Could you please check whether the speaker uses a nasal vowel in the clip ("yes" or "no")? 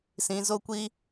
yes